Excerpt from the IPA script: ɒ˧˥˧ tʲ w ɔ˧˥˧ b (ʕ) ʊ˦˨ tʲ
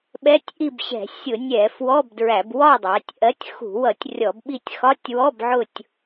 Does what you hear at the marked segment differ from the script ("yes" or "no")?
no